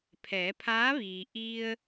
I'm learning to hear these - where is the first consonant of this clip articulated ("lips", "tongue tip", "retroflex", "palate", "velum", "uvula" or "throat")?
lips